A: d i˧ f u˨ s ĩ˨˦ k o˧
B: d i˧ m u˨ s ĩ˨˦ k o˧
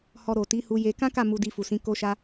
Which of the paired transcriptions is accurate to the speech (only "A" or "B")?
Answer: A